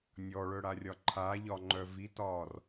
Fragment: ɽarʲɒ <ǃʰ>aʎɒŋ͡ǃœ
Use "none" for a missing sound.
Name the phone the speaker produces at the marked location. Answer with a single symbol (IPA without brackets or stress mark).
ǃʰ